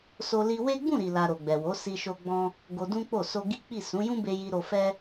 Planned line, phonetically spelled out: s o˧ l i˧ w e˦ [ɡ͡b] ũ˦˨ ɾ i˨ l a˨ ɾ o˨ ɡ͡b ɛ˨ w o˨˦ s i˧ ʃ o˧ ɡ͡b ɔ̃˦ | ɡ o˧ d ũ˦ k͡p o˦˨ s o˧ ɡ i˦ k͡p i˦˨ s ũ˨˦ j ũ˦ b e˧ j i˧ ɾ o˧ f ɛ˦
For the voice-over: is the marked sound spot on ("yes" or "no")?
yes